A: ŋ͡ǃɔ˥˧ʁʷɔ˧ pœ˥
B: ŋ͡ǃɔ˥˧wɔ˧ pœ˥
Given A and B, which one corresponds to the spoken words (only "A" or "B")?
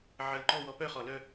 B